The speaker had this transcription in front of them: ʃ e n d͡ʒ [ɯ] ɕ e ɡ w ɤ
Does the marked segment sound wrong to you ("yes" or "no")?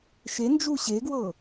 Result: yes